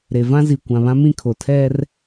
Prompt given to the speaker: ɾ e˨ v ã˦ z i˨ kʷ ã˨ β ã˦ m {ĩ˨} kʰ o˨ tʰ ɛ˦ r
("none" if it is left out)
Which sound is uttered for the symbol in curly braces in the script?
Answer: ĩ˦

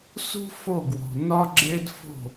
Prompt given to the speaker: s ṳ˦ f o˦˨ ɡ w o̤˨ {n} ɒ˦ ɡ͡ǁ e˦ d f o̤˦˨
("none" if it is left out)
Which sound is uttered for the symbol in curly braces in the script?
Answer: n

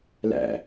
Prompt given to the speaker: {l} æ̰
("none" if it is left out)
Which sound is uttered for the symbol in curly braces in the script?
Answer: l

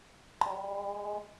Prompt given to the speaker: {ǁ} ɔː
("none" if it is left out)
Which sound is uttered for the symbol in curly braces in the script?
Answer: ǃ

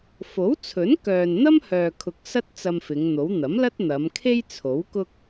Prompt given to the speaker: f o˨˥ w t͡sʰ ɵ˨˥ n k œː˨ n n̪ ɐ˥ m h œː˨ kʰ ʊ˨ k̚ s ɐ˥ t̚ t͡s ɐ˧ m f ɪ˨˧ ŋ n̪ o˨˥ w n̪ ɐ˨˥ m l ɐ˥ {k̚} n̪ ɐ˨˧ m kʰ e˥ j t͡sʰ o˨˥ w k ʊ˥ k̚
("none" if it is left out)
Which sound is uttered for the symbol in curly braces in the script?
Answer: t̚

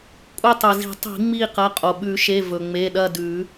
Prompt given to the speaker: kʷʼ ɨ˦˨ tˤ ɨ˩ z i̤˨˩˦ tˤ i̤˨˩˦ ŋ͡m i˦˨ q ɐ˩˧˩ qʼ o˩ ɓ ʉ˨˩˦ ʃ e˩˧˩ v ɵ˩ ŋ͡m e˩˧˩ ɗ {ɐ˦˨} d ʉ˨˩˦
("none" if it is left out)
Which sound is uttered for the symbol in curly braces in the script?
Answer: ɐ˦˨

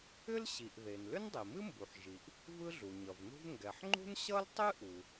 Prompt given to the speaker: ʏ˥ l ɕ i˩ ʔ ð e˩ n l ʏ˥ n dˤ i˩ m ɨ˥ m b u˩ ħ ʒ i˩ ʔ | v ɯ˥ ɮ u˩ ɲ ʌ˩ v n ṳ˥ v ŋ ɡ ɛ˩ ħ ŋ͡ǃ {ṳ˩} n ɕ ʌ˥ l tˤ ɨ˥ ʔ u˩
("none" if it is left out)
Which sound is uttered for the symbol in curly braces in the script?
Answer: ṳ˥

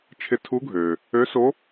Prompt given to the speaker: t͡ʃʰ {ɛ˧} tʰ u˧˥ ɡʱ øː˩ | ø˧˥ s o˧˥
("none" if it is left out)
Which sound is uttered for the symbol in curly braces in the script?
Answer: ɪ˧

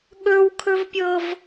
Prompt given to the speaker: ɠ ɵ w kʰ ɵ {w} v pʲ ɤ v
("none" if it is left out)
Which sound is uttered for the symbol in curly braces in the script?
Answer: none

